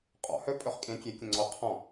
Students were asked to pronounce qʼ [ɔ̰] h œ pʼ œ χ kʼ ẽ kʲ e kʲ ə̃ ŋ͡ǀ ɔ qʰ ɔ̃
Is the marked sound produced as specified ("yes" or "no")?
yes